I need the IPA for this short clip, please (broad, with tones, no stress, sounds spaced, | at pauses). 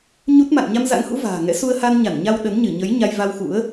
ɲ u˦˥ t̚ m a̰˧˨ n ɲ a˧ m z a̰˧˥ ŋ h ṵ˧˥ v a̤ː˨˩ ŋ ɛ̰˧˥ s u˧ ə̯ h a˧ n ɲ a˧˩ n ɲ a˧ w ɗ ə˨˦ n ɲ ɨ˧˩ ɲ ə˨˦ j ɲ a˧ j v a˧ w x ṵ˧˥ ə̯